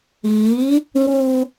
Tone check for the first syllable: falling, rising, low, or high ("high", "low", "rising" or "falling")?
rising